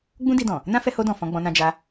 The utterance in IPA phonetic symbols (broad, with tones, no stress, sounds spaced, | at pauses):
ɡ͡b ũ˦ d i˧ d ɔ̃˨ | n ã˦ f ɛ˧ h o˧ d ɔ̃˨ f ɔ̃˧ ɡ͡b ɔ̃˧ n ã˧ d͡ʒ a˧